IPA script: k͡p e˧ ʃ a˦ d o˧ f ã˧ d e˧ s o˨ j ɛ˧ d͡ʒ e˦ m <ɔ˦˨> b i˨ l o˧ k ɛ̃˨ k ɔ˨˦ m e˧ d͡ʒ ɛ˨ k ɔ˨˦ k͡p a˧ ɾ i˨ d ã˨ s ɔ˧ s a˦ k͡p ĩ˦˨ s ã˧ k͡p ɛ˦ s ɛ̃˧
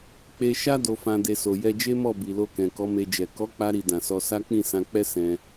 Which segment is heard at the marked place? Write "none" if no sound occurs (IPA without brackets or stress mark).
ɔ˦˨